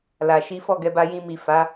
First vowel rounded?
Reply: no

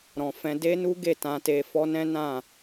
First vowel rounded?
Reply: yes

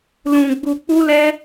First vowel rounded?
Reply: yes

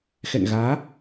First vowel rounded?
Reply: no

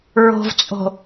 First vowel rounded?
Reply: yes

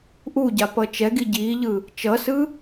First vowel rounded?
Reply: yes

